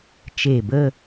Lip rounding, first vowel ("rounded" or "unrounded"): unrounded